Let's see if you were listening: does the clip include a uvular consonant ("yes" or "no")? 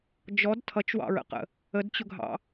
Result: yes